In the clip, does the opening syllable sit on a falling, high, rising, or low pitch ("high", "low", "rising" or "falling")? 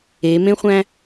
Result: rising